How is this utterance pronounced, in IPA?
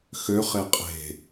xø χeqʼe̤

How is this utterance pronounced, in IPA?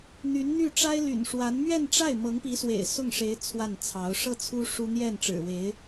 n̪y˧˥nn̪y˥˩ ʈ͡ʂa˥ɪ̯ly̰˨˩nʂwa˧˥n mɥɛ˥˧nʈ͡ʂa˥˩ɪ̯ mɤ˧˥ŋpi˧˥swḛ˨˩ɪ̯ sʊ˥˩ŋʂe˧˥ɪ̯ t͡sʰwa˥˩nt͡sʰɑ˧˥ʊ̯ ʂɤ˥˩t͡sʰu˥ ʂu˥ n̪jɛ˥˩nʈ͡ʂɻ̩˨˩we˧˥ɪ̯

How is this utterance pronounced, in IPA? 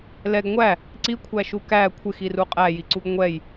lɛɡ ŋʷæ | ǀikʷʰæʃu kæ kʷʰɪxiru qʼæjiǀuɡ ŋʷɛj

